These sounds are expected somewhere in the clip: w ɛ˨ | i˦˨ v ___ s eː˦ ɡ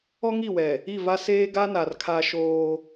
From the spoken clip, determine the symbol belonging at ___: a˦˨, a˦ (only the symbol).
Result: a˦